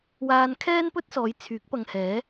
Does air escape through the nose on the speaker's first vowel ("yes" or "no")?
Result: no